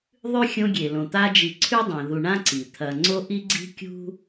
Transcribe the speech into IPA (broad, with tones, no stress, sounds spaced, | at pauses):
ðˤ ʉ˥ xʲ õ˦ ɡʲ e˩ l õ˩ t̪ a˦ d͡ʒ i˨ ǀʰ ʉ˥ dˤ ẽ˩ ð u˨ ɳ ã˥ ǀ i˩ t̪ʰ ɐ˨ ŋ͡ǀ o˥ ʔ i˥ ɡ͡ǀ i̤˥ kʲ ṳ˥